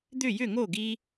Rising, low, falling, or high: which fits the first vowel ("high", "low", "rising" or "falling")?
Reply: falling